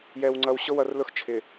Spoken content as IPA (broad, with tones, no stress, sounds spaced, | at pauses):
j ɛ˨ w ŋ͡ǀ ʌ˨ w ɕ ʊ˦ w ʌ˨ r l ʊ˦ x t͡ʃʰ ɪ˨